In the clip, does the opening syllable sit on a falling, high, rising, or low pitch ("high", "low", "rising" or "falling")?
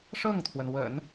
falling